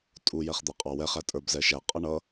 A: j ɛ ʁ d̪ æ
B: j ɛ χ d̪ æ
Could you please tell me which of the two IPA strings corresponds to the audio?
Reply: B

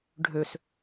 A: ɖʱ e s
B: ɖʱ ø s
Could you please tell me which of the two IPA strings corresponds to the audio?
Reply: B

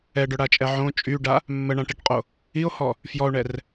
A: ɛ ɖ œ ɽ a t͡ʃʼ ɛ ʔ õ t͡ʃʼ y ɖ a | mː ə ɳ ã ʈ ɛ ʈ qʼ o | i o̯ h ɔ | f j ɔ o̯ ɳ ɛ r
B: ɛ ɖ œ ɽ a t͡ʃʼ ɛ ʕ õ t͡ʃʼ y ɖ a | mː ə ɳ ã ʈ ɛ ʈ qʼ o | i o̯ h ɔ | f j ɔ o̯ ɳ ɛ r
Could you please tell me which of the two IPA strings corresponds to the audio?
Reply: B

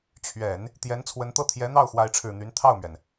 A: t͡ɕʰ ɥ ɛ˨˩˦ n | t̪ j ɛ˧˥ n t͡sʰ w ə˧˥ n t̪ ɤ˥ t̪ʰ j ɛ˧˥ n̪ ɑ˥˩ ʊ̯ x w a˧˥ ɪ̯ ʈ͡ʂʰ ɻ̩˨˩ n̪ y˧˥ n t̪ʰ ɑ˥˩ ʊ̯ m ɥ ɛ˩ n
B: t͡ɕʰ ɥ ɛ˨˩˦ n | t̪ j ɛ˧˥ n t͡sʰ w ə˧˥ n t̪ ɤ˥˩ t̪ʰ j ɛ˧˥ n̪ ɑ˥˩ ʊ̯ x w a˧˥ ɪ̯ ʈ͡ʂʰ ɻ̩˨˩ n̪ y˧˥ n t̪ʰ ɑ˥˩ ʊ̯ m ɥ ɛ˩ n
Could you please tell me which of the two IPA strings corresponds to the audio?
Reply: B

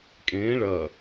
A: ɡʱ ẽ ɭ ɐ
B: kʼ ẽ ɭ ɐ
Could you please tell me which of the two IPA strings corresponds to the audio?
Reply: B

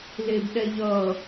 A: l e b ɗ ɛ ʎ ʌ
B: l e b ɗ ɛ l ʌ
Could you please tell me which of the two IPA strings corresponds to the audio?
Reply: A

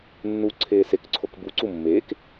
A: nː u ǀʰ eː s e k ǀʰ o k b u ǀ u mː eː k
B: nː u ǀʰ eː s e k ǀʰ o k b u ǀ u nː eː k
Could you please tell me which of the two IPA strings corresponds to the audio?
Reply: A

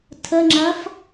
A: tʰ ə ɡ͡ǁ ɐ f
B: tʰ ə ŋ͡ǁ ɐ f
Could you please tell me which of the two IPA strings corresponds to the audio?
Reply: B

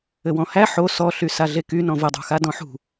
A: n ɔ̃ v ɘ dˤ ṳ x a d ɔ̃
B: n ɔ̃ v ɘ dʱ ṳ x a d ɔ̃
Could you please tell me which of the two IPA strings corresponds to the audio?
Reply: A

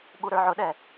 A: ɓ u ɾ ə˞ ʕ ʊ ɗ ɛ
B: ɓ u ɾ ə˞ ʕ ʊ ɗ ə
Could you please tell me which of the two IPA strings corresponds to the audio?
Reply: A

